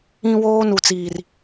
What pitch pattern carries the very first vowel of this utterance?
high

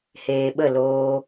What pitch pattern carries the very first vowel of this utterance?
low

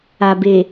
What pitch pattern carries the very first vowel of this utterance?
low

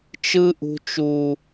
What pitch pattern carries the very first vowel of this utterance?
high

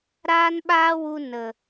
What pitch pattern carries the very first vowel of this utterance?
high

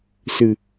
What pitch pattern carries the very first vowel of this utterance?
low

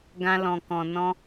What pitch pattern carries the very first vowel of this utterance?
high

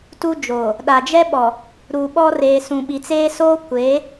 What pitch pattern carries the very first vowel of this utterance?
high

